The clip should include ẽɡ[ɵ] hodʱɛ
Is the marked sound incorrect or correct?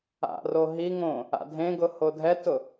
incorrect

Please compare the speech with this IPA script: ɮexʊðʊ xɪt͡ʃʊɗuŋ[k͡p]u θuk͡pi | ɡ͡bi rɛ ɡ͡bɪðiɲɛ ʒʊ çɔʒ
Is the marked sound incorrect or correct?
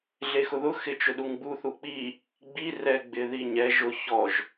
incorrect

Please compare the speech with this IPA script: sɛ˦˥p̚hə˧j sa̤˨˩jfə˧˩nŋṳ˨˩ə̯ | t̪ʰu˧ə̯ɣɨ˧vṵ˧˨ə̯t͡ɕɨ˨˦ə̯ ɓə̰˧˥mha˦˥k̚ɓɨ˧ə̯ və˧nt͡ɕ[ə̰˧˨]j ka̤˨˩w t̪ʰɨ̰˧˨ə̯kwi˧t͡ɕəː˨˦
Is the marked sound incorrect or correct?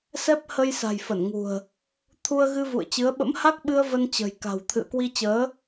incorrect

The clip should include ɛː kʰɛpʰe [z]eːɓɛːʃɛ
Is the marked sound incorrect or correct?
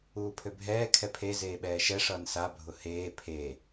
correct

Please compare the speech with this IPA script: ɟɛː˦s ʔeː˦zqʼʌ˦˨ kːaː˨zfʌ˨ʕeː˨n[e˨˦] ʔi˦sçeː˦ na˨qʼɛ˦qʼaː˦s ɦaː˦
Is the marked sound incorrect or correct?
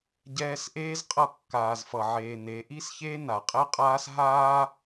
correct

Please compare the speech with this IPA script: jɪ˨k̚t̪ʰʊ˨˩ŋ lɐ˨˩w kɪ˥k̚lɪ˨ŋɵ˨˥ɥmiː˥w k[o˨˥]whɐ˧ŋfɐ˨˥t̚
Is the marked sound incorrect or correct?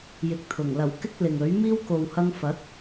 incorrect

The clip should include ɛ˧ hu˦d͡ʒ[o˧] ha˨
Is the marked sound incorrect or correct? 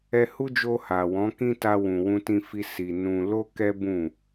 correct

